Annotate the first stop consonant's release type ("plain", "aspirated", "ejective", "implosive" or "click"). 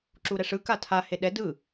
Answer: click